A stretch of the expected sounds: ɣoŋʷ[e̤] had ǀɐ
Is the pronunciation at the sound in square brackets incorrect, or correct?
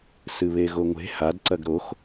correct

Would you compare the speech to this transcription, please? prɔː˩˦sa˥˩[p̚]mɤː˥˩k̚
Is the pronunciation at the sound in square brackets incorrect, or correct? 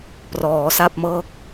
correct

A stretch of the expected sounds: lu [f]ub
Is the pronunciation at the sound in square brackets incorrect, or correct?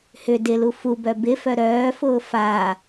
correct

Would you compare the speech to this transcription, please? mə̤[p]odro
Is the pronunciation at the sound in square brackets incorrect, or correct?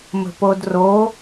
correct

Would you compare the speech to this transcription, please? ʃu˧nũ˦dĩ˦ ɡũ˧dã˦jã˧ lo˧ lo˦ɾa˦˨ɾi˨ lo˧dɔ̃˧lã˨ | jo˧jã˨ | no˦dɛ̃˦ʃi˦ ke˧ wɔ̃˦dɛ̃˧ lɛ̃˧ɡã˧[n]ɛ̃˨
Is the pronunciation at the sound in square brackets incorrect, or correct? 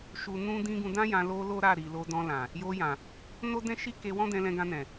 correct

